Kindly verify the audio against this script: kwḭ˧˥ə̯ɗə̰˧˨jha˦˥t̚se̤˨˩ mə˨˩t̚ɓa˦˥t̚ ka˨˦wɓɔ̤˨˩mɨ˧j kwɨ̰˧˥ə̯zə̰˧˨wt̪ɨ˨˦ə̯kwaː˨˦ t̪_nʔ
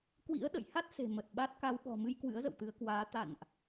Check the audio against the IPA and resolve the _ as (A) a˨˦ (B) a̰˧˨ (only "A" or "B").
B